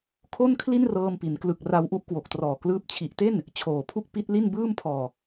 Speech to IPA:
kʰ o˥˩ n kʰ l i˥˩ n r ɤː˧ m p i˩˦ n k l ɯ˨˩ k̚ r a˧ w ʔ u˦˥ ʔ k w o˨˩ k̚ t r ɔː˨˩ k l ɯː˦˥ p̚ t͡ɕʰ i˨˩ ʔ t e˥˩ n | t͡ɕʰ oː˨˩ pʰ u˥˩ k̚ p i˦˥ t̚ l i˥˩ n b ɯː˥˩ m pʰ ɔː˨˩

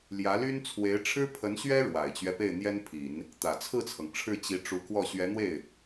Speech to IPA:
l j ä˧˥ l y˥ n t͡sʰ w e˧˥ ɪ̯ ʈ͡ʂʰ ɻ̩˥ pʰ ə˧˥ n ɕ ɥ ɛ˥ ɻ w a˨˩ ɪ̯ t͡ɕ ɥ ɛ˦ p e˥˩ ɪ̯ n̪ j ɛ˥ n pʰ i˨˩˦ n | t̪ ä˨˩ t͡sʰ ɹ̩˥˩ t͡sʰ ɤ˩ ŋ ʈ͡ʂʰ ɻ̩˥˩ t͡ɕ i˧˥ ʈ͡ʂ u˧˥ k w ɔ˥˩ ɕ ɥ ɛ˧˥ n̪ w e˥˩ ɪ̯

